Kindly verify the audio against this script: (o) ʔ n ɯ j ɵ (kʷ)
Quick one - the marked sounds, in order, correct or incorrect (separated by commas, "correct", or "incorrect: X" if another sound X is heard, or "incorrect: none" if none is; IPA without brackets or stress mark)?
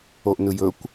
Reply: correct, correct